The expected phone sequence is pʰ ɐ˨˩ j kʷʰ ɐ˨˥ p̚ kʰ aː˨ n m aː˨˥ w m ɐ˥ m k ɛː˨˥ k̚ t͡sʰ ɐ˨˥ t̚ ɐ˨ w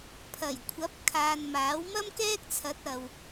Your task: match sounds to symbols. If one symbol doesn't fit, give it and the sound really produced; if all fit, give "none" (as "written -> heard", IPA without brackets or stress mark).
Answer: ɛː˨˥ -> ɛː˥